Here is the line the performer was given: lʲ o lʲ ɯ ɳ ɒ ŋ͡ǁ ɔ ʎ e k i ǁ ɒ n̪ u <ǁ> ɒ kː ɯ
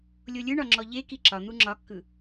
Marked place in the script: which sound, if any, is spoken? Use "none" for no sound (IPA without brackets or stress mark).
ŋ͡ǁ